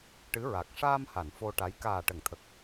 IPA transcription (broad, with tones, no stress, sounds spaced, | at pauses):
ʈ ɨ˧˥ ɹ a˨˩ k̚ ʂ aː˧ m h a˨˩˨ n f o˧ ʈ a˧˥ j k aː˨˩ ʈ ə˨˩˨ ŋ t̪ʰ ə˨˩ k̚